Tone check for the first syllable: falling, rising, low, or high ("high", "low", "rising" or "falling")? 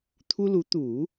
high